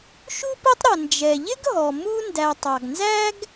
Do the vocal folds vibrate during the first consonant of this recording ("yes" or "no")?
no